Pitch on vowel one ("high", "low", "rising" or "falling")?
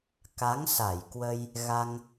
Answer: rising